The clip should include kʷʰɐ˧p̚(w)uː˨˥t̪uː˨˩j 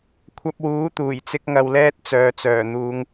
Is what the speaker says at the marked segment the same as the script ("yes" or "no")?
yes